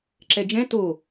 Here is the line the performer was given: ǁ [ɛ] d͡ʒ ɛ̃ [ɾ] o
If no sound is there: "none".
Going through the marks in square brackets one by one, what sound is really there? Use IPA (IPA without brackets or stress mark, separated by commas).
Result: ɛ, t